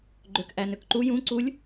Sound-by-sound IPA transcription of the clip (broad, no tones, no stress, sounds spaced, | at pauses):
ɡ͡ǃ ø k ʔ æ n ø k ǃ u j ũ ǀ u lʲ